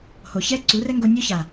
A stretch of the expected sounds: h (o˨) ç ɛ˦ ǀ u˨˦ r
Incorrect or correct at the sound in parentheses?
correct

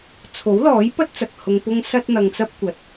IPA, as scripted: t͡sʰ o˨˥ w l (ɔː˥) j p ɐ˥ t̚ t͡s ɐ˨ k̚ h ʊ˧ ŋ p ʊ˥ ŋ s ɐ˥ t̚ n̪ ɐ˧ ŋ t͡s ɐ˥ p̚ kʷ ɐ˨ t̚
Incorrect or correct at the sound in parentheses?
incorrect: ɔː˨˥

